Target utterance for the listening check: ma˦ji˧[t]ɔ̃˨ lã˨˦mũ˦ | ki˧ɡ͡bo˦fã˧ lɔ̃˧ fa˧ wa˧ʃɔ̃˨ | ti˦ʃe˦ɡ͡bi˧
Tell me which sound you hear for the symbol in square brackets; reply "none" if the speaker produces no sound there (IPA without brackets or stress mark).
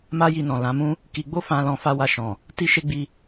n